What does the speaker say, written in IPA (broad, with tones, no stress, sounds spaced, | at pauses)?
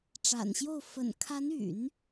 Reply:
ʈ͡ʂ a̰˨˩ n ɕ j o˥˩ ʊ̯ f ə̰˨˩ n kʰ a˧˥ n y̰˨˩˦ n